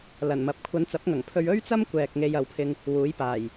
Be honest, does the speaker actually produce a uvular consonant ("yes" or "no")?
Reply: no